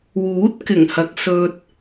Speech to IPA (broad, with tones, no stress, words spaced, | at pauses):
wuː˨˥t̚kɪ˨˩ŋhɐ˨k̚ sɵ˥t̚